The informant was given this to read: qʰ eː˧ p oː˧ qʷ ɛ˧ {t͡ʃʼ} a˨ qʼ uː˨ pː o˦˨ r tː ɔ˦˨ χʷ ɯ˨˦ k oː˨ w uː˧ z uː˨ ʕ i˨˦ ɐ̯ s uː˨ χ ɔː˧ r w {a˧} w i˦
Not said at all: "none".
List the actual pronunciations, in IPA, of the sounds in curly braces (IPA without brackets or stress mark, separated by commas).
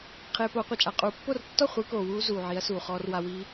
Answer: t͡ʃʼ, a˧